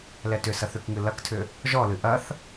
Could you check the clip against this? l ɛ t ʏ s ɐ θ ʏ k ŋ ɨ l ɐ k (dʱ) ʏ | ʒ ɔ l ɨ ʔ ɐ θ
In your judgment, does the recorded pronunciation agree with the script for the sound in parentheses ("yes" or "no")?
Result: no